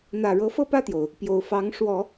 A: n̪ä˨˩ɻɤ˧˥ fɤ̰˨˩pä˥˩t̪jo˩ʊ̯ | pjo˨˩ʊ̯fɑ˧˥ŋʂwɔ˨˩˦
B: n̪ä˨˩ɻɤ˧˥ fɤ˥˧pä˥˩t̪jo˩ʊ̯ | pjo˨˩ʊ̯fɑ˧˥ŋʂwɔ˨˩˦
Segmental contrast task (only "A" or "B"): B